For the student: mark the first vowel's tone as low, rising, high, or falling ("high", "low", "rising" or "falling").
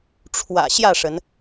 low